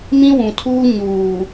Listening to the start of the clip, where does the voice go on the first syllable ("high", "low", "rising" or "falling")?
high